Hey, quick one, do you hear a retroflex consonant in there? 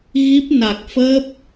no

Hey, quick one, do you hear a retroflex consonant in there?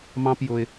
no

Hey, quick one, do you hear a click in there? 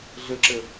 yes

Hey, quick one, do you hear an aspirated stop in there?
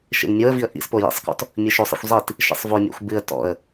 no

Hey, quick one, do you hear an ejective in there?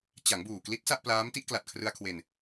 no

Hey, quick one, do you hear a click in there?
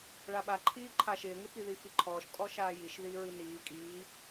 yes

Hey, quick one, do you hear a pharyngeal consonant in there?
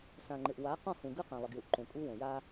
no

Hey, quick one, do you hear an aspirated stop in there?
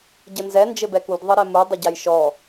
no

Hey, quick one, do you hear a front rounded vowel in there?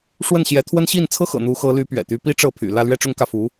yes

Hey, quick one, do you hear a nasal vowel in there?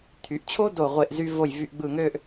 no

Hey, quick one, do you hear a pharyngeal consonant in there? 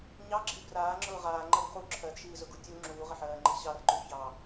yes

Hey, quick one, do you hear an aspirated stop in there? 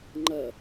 no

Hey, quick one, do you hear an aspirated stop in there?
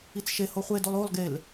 no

